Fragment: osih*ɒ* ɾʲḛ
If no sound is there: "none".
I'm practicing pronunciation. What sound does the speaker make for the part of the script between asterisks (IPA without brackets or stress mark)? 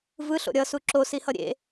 ʌ